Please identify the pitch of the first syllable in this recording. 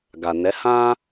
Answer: low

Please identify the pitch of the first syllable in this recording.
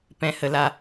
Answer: high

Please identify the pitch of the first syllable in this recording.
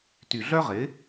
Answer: low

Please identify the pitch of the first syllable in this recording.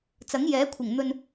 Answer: rising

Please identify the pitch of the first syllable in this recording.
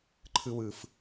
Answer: high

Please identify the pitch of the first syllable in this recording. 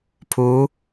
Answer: rising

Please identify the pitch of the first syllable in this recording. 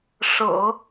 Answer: low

